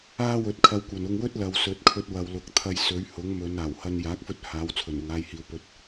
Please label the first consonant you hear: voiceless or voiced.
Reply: voiced